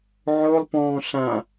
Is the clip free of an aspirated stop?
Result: yes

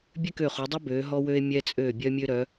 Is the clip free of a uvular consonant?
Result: no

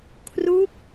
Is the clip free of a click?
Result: yes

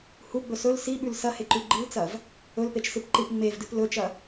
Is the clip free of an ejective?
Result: yes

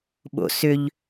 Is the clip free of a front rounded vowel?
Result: no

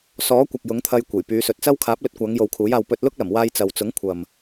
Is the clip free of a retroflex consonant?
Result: yes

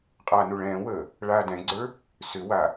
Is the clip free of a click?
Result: no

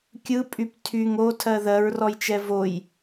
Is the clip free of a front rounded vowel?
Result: no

